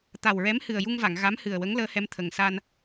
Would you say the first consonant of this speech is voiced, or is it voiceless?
voiceless